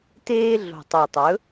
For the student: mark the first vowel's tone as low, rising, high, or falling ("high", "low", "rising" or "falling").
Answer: high